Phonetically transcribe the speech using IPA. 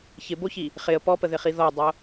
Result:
çɪboçi | χɪə̯ pɔpəðɪχi ðɔdˤo

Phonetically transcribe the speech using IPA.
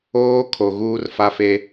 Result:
oː˦ kʰo˨ɣuː˦rfa˦fe˦

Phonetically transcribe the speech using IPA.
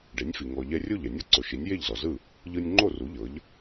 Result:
ɖe˩˥nʲfi˩ ŋɔ˩ʎɛ˧rʲo˥˩ʎ ɛ˩nʲo˥ ǀo˩ʃi˩˥nʲ je˥˩ʎzɔ˩zɯ˥˩ | ʎɯ˧nʲ ŋ͡ǃo˥˩ru˩˥ ʎɤ˩˥ʎ

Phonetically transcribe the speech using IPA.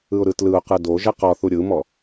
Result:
ɯʊ̯ɾɯtlɯʊ̯qɯ doʒɛ qɔθu ɾʲɯmɔ

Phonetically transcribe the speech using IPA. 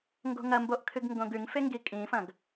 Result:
ŋɡo̤ŋɐmboʔ kʰɨɡŋɡõɡʉŋfe ŋɡikʼĩfɐ̃ɡ

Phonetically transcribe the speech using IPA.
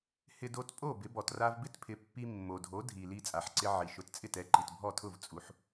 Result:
hɪ˧do˧t pʼo˥˩ bɪ˩˥bɔ˩t ra˧vbɪ˥tpʰɪ˩˥pːi˧ mːo˩dʱo˩˥ dʱi˩ li˧t͡sʼa˩ħǀɪ˧ ʕi˩ʃʊ˩˥tt͡sʼɪ˥˩tɛ˩˥ ǃi˩tbʱɔ˥˩tʰʊ˥˩v t͡sʼu˩˥ħ

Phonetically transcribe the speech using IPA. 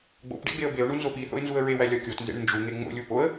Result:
ɡ͡bo̰pɖḛ ɡ͡beə̯beʊ̯ɳu nzopiθo̰ɪ̯ nzuə̯ɹewæ lʲɒkʲotnzḛɳ nd͡ʒuŋe ŋ͡mo̰lʲu poə̯

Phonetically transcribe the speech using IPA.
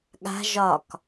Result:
ɠa̤ ʒɒk

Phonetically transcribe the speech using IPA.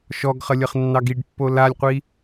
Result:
ʃɔɡχəlʲəχnːɑɡ iɖpːo lalʲqʷi

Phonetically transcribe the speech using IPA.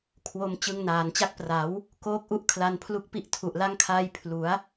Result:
kʰwo˧m t͡ɕɯ˧ŋnaː˩˦nt͡ɕa˦˥k̚pra˩˦w | koː˦˥k̚ʔu˦˥ʔ kʰla˧npʰlu˦˥k̚pi˥˩ʔ tʰu˨˩ʔla˦˥ŋkʰaː˧j pʰlu˩˦a̯

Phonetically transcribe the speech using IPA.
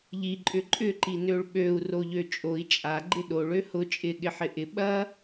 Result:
ʎi ǃʼʏǃʼʏ ǃinøɭɓøu̯ roʎøt͡ʃʼoi̯ t͡ʃʼa ɡ͡ǃɪɗoɭ øhʊ t͡ʃʼɪ ɠɪħɪʔɪ ɓɐ

